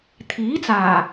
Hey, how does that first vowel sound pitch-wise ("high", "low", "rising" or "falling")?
rising